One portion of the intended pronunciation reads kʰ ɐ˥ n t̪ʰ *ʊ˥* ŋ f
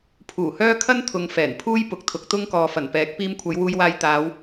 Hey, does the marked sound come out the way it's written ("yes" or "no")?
no